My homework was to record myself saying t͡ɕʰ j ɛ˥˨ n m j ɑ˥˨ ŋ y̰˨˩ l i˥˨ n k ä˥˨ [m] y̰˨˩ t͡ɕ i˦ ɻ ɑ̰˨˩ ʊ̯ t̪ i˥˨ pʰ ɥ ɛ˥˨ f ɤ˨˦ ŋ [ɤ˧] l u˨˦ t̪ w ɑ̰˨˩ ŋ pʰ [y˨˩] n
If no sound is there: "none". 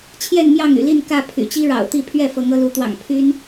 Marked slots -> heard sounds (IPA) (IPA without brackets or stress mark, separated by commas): pʰ, ɤ˧, y˦